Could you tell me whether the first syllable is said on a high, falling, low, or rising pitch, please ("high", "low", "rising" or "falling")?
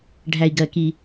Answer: low